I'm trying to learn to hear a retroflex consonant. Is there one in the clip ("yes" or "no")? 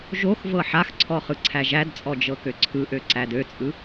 no